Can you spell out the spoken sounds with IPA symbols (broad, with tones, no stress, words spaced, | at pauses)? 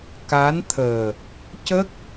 ka˧˥nt̪ʰəː˨˩ | cə˦˥k̚